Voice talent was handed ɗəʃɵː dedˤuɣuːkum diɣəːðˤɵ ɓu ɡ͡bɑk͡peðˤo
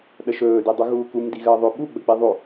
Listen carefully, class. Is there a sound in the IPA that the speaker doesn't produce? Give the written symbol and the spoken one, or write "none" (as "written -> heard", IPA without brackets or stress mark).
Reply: ɑ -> ə